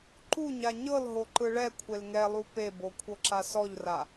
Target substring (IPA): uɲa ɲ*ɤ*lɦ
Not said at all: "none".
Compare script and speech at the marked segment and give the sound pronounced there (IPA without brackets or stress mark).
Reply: ɤ